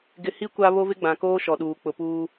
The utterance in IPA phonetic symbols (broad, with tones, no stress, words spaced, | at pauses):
ɡɪ˨hi˦ kʷa˦ βo˦vɪ˦ɡ͡bã˨koː˦ ʃɔ˨ɗuː˨ k͡pʊ˨puː˦